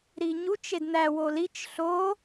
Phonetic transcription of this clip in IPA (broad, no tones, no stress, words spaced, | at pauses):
ɾiɲut͡ʃ edn̪æ wolit͡ʃ ɬo